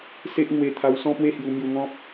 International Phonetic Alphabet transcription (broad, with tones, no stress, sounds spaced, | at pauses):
s e˦ ʔ ŋ w e˧ t̪ʰ a˧ w s ɔ̃˥˧ p w e˥˧ h j u˧ m j u˧ ŋ ɔ̃˦ p̚